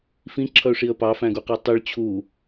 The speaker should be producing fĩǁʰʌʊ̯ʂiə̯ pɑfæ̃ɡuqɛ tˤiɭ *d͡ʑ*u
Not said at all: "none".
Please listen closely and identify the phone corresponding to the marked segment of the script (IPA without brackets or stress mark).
t͡ɕʰ